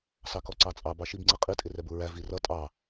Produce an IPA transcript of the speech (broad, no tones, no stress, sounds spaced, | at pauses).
s ɑ k ɔ ǀ ɑ t͡sʼ ɑ b ɑ ʃ i b ŋ͡ǀ i qʼ i tʼ ɪ r ɛ b u ɹ æ v i r ʌ tʼ ɑ